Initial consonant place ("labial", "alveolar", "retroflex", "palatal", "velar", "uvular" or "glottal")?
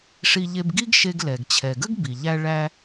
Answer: retroflex